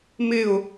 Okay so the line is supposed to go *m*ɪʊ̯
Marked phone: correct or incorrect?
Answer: correct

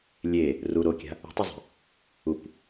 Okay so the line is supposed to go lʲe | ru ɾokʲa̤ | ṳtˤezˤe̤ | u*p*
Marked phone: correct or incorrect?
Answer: correct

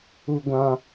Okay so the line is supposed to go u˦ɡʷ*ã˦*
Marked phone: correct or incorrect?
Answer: correct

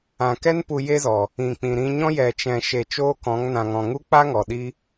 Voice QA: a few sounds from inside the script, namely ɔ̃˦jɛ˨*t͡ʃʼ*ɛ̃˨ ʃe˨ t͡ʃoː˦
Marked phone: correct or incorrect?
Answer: incorrect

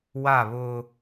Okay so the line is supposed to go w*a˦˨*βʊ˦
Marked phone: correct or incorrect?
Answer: correct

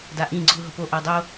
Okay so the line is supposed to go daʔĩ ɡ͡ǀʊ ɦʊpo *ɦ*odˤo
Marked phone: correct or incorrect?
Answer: incorrect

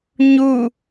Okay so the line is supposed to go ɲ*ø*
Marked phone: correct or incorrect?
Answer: incorrect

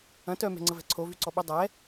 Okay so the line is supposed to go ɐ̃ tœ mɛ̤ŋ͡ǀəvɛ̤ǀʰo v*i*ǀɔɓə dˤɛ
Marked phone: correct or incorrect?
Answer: incorrect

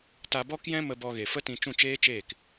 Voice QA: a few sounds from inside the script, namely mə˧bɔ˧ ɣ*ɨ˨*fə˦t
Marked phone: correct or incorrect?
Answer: incorrect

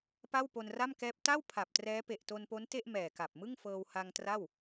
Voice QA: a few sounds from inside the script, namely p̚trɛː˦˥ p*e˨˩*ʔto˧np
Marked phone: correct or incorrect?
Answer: correct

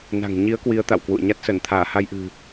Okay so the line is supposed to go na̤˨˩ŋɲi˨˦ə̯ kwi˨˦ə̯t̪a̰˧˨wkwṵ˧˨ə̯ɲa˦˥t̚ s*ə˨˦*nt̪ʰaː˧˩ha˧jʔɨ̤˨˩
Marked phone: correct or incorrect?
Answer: incorrect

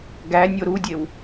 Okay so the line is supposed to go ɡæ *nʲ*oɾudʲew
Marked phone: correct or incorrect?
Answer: correct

